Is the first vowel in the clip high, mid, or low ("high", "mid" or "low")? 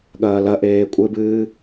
low